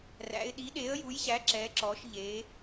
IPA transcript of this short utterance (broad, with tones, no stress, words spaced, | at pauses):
ræ̰˩˧ɪ̯ɗi˩˥ɗe˩˥ə̯ ju˩˥jɕæ˩˥ ǁɛ˩˧ǁɔː˩˧ʃʎe˩˧